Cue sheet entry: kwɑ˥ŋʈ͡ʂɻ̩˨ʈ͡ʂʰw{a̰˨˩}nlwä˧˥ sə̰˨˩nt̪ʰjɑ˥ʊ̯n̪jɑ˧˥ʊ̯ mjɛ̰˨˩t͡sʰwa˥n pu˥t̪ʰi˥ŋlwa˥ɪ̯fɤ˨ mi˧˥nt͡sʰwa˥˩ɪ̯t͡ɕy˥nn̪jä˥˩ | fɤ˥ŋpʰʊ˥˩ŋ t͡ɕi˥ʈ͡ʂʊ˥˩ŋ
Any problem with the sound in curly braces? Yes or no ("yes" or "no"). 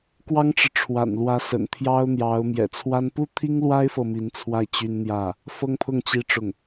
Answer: no